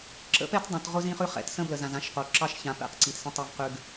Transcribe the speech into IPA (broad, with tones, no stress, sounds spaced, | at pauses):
ǁ ə̰˦ p ɛ˦ t dˤ õ˨ t ʁ ʊ˦ z ĩ˦ χ ʉ˦ χ ɛ̰˨˦ t s ə̃˦ b l ə˨ z ã˨ z ã˦ ʃ q o˨ ǁ ɑ˦ ʃ ç ã˨ p ɛ̰˦˨ q ǀ i˨ t s ə̃˦ tˤ e˦ v q ʉ˦ ɡ